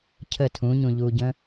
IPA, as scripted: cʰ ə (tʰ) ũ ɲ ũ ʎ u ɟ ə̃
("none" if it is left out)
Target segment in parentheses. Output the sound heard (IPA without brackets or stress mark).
tʰ